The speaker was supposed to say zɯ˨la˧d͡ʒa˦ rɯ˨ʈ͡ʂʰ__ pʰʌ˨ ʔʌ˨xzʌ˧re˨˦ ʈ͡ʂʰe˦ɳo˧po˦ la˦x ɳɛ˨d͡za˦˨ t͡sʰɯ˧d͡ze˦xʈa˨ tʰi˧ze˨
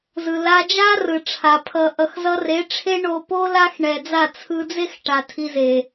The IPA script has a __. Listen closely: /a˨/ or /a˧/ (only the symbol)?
a˨